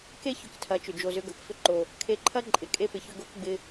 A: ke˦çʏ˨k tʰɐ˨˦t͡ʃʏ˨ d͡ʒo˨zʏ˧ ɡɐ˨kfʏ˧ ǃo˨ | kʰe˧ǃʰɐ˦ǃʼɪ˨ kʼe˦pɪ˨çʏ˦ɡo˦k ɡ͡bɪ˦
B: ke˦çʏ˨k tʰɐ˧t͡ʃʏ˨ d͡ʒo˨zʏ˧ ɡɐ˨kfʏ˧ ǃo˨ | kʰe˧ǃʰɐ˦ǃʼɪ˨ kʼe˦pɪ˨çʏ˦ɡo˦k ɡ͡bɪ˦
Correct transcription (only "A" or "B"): A